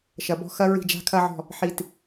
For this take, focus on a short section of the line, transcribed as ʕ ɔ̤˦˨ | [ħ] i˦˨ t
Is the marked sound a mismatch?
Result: no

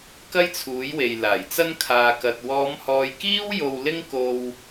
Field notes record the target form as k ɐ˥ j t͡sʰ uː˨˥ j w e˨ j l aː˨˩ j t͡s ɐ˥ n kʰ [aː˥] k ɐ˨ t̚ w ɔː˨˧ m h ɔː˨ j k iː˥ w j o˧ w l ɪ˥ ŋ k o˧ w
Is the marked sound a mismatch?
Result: yes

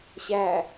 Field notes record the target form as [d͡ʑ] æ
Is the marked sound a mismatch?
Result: yes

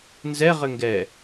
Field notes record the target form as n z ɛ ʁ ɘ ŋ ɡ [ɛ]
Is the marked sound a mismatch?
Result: no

